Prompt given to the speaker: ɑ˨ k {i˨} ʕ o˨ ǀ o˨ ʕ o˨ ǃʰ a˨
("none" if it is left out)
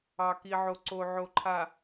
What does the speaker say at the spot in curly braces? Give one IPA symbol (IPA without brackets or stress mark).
i˨